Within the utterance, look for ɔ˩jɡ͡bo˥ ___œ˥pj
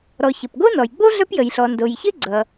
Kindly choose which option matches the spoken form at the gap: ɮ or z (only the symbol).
ɮ